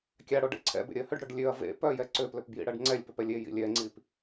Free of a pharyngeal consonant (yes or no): yes